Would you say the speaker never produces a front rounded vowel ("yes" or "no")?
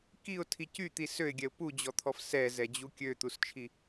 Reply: no